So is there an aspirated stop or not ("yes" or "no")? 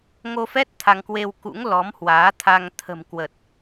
yes